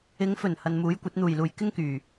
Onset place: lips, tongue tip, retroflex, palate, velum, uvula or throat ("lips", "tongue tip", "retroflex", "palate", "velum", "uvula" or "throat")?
velum